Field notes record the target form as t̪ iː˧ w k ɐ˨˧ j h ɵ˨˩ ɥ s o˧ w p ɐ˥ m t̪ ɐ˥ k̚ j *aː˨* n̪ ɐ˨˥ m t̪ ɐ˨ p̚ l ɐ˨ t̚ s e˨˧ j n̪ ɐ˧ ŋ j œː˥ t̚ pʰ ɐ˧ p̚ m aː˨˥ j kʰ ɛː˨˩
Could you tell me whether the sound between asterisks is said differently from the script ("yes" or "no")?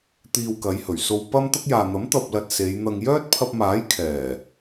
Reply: no